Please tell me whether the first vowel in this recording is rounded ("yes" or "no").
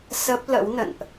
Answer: no